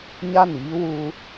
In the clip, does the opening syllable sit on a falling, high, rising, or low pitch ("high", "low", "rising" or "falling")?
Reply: high